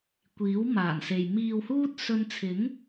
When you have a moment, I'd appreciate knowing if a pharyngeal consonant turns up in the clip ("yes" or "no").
no